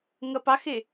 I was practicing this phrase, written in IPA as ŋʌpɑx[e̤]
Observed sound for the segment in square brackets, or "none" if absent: e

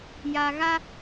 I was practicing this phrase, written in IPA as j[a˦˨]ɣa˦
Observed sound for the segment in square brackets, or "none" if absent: a˨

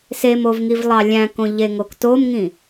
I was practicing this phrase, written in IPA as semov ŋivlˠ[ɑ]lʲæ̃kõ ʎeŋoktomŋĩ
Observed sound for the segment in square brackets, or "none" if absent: ɑ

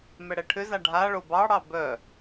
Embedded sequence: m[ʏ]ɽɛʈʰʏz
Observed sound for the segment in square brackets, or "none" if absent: ɛ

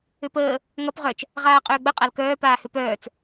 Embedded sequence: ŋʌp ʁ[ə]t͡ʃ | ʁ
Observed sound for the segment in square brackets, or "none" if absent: œ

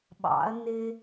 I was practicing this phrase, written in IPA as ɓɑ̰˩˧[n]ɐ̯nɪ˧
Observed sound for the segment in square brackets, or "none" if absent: none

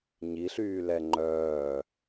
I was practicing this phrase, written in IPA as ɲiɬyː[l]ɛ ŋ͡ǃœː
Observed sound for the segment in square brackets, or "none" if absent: l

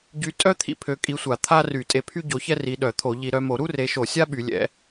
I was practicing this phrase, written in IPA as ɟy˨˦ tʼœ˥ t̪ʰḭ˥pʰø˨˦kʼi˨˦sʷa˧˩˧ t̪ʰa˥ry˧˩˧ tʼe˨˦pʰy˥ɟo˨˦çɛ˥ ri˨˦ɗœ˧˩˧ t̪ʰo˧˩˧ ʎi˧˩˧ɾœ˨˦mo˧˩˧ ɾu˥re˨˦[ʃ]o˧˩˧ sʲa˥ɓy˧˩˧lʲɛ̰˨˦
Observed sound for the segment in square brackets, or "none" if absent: ʃ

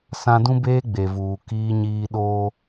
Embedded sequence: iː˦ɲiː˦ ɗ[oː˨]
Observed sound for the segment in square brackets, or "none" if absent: oː˦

